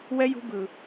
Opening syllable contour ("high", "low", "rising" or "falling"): high